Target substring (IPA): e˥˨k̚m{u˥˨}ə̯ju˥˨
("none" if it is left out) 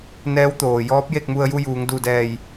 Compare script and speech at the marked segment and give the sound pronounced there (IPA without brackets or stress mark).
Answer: u˧